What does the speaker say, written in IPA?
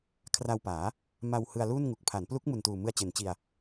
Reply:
kʰra˧wpaː˩˦ | ma˧w hɯ˧a̯luː˥˩nŋu˨˩k̚ pʰa˩˦nplu˦˥k̚ mu˨˩ntuː˨˩mɯ˧a̯t͡ɕe˩˦n t͡ɕi˧a̯

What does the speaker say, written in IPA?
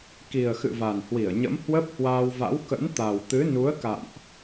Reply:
ki˨˩ə̯xɨ̰˧˨ va˨˩n hwi˧˩ə̯ɲə̰˧˥m hwə˦˥p̚hwaː˧wva̰˧˥w kə̰˧˥nt̪a˨˩w t̪ɨ˨˦nu˨˦ə̯ ka̰˧˨mʔ

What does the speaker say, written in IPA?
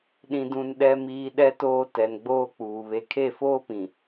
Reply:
ɗĩ˨dũ˨n ɗɛ˨ miː˨ ɗɛ˦toː˦ tɛ˨nɡ͡boː˦k͡puː˨ βe˨kʰe˦˨foː˦pĩ˨

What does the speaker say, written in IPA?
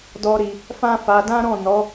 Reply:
dɔ˦ɾi˧ | fã˦fa˧ dã˦ɾɔ̃˦˨ nɔ˨˦

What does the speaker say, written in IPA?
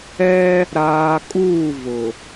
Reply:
ɛ˦ | ɾaː˨kʼuː˦˨ vʊ˨

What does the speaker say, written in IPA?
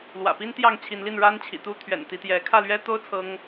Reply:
lwä̰˨˩pi˦n t̪jɑ˥˨ŋt͡ɕʰi˨˦nli˥˨n ɻa˦nt͡ɕʰḭ˨˩t̪u˥˨ t̪ʰɥɛ̰˨˩n t̪i˨˦t̪jɛ˨˦ kʰä˥˨lɥɛ˦t̪o˦ʊ̯ t͡sʰɤ˦ŋ

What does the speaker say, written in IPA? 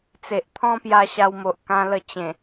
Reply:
t͡se˨ʔt̪ʰɔ̃˦ pja˧ɕa˧wmo˨ʔ kã˧lə˧ t͡ɕẽ˨˩

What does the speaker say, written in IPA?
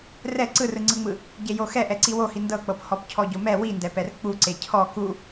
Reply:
rɛ ǀɯrɯŋ͡ǀɯŋ͡mɯ | ɟejoxɛ ʔɛǀiwohi ndɤk͡pɤp hɔpcʰɔɟomɛ windɛpɛr k͡pu ǀecʰɔ ku

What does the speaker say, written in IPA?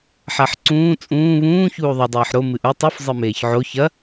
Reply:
ħaħǀũː t͡sʼũː βũː çuːðˤɨ dˤeːħɾo mɨʔu tˤuf zˤɨmeːçʕo çɐ

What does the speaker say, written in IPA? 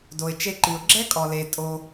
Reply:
do˨ɪ̯ t͡ʃe˧ǃi˨ʊ̯ ɡ͡ǁɛ˦kʼɔ˨ le˨ tʼo˧

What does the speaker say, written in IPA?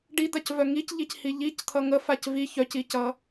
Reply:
ɖid̪acvœ ŋicʎichi ʎict̪ʰʌ ŋəfac vi çœcicʌ

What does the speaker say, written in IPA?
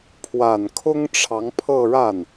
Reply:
pʰwa˨˩nkʰʊ˥ŋ ʈ͡ʂʰɑ˧˥ŋpʰɤ˥˧ ɻa˥˩n

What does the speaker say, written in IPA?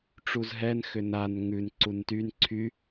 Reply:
ʈ͡ʂuzɦɛnxʏ nan ŋʉn ǀuntyn ǀʰy

